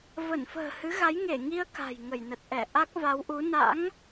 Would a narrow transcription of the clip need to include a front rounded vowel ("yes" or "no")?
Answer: no